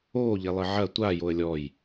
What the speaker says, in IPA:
oːʎelˠɘ ʕɐ tʷa joə̯lʲɔj

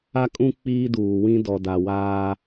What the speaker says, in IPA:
a˦kʼũ˦ k͡piː˦duː˨ wĩ˦dɔ˨ da˨waː˦

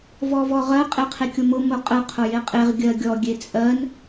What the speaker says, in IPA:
vɔvɔʁɜ qʼeqʰekʲʊmʊ mʊqʼə qʰʊjeqʼeʁ ɡʲɜɡʲɔ ɡʲet͡sʼɜn

